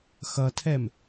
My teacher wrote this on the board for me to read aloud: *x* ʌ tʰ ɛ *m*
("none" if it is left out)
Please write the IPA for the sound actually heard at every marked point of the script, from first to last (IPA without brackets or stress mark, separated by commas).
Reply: x, m